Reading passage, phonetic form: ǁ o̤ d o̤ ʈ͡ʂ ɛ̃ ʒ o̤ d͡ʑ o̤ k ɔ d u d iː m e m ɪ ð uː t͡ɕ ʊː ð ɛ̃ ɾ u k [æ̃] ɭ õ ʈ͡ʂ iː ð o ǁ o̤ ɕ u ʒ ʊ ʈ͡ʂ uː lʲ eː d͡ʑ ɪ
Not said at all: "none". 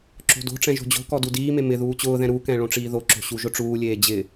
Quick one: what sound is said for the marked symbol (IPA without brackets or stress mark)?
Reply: ɛ̃